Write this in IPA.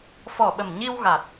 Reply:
f ɔ˨˩ ɓ ə˨˩ m ɲ i˧ w ɣ a˨˩ t̚

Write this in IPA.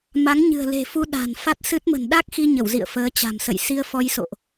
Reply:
m a˨˦ ŋ ɲ ɨ̤˨˩ ə̯ l e̤˨˩ f u˧ ɗ a̤˨˩ n f a˦˥ t̚ s ɨ˦˥ t̚ m ə̤˨˩ n ɗ a˦˥ k̚ x i˧ ɲ ə˧˩ w z ḭ˧˨ ə̯ f əː˨˦ t͡ɕ a̤˨˩ m s ə̰˧˨ j s i˧ ə̯ f ɔ˧ j s o̰˧˨ ʔ

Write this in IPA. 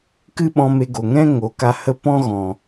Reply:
k ɨ˦ ɓ ɔ̃˧ m e˧ ɡ o˨ ŋ ɛ̃˦ ŋ o˨˦ k a˧ h ə˦ p ɔ̃˦ ɣ ɔ̃˨

